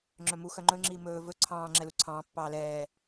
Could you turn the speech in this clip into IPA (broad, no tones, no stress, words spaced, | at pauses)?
ŋ͡ǁœmu xœŋ͡ǃɵŋ͡ǁiː mɵː vɵ ǀʰɑ̃ː ŋ͡ǁɛluǀʰɑ̃ː pːɑːlɛː